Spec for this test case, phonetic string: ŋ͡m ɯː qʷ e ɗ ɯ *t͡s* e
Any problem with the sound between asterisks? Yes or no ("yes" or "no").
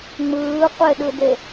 yes